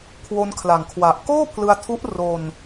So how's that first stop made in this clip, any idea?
aspirated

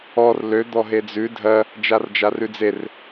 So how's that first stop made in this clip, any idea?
plain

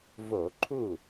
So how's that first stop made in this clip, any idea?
click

